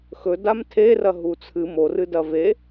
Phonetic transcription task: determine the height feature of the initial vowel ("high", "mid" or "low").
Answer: mid